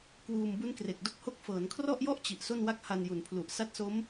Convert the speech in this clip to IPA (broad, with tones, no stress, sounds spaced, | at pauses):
k w uː˧ m b u˦˥ n k r e˨˩ k̚ d o˦˥ k̚ h o˦˥ k̚ f ɤː˩˦ n kʰ r ɔ˥˩ ʔ j ɔ˥˩ ʔ t͡ɕ i˨˩ ʔ s o˥˩ n w a˥˩ k̚ h a˧ n j u˨˩ n pʰ l u˨˩ ʔ s a˦˥ t̚ s o˦˥ m